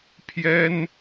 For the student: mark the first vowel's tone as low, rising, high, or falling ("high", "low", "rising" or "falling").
high